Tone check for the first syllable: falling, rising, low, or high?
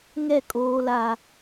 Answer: falling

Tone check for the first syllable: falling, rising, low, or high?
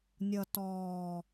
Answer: low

